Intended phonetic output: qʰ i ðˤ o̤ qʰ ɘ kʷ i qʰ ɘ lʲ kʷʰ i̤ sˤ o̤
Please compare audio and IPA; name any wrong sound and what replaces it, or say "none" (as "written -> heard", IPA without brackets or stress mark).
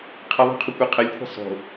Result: none